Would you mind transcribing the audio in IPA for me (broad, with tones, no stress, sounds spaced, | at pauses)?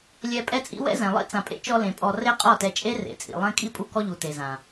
lʲ ɛ˧ pʼ ɛ˦ t͡sʼ ḭ˦ w ɛ̰˦ z ɛ̃˨ lˠ ḭ˦ t͡s ã˨ pʼ ḛ˦ t͡ʃ ɔ˧ l ẽ˨ pʼ ɔ˧ r e˦ qʼ ɔ˦˨ t ɛ˧ t͡ʃʼ e˦ r ḛ˨˦ t͡sʼ ḭ˨ lˠ ɛ̃˦ kʼ i˦ pʼ u˦ k ɔ˦ ʎ u˨ t e˨ z ã˨